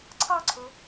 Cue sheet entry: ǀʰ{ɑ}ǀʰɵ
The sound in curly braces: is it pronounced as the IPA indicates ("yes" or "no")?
yes